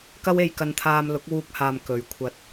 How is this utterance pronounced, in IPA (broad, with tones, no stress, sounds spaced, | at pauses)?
k ɐ˥ w e˧ j k ɐ˧ n t̪ʰ aː˧ m l ʊ˨˥ k̚ w uː˧ k̚ h aː˨ m k ɵ˨ ɥ kʷʰ ɐ˧ t̚